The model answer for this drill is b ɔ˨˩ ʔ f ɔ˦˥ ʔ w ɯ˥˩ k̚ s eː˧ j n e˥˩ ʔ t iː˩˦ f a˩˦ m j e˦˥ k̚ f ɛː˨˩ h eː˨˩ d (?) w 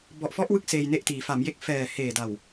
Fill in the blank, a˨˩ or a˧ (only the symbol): a˨˩